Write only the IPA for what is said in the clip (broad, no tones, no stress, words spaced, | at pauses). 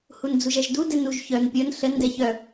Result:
hund͡zuʒɛʒdu dɛnuʒçœn pʲən ɬən dɛçœ